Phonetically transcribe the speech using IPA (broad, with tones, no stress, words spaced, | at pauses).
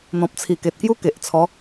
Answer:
n̪ɔ̃˨p̚t͡sʰi˨˩ke˨t̚ kju˦ke˨ʔt͡sʰɔ˨˦